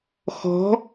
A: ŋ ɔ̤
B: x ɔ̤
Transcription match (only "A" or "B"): B